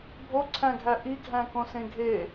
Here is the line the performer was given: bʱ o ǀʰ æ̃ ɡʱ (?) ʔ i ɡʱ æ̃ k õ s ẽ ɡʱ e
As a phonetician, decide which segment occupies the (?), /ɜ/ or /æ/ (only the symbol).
æ